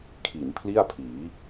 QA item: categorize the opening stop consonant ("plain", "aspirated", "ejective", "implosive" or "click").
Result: aspirated